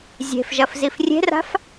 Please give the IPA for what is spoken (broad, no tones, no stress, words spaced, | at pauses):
zʲe̤fʒɐf zifrʲe̤ra̤f